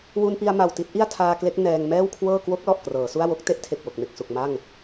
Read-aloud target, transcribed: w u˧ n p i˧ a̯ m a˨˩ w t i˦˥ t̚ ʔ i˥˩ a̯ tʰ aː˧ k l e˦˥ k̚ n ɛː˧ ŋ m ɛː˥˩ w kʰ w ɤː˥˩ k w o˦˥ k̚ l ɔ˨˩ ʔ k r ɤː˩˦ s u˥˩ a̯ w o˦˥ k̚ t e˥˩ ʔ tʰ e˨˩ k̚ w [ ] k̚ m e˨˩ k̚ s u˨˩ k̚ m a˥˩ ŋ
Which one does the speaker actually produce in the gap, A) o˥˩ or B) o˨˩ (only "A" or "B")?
B